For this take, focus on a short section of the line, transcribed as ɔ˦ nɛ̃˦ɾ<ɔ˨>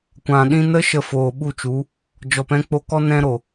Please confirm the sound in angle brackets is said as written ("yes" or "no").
no